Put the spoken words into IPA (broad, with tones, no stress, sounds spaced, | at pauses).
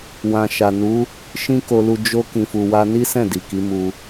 w ã˨ ʃ a˨ n u˨˦ | ʃ ĩ˦ k o˧ l u˧ d͡ʒ o˧ k ĩ˨ f u˨ w a˧ n i˦ s ɛ̃˦˨ d i˨ k i˨˦ m u˧